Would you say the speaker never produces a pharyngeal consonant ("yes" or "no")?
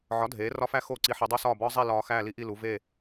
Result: no